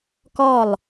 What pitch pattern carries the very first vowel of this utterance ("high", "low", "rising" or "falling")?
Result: falling